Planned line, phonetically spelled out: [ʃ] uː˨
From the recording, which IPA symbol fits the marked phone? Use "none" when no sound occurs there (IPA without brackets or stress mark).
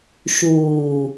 ʃ